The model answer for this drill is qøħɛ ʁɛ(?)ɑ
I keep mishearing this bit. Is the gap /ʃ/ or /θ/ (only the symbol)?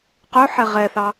θ